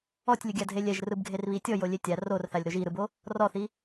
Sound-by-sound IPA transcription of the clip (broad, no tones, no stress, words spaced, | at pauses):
ɔtʲlʲɯɡʲadʱe lʲɛʒrɯbɡʱerβi tʲɔjolʲe tʲa rorθalʲɾoʒ iɾɯbo | rɔθi